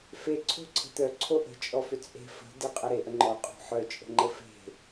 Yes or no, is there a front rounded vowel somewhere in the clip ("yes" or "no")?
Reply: yes